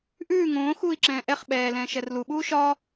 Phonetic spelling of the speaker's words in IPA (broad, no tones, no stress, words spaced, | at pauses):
ʔʉː ŋõː xuːi̯ǁɛ̃ːʔɛχ ɓɛː lɛ̃ːʃɛrlu ɓuːʃɒ